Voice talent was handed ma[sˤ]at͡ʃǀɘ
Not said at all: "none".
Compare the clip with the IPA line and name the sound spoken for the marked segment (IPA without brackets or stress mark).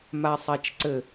sˤ